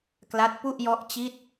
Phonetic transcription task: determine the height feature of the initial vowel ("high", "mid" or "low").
low